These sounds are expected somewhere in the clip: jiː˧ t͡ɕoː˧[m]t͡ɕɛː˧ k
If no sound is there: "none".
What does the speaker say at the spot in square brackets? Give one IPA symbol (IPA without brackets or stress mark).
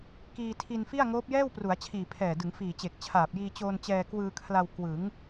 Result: n